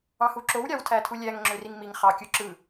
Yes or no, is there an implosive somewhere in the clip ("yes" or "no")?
no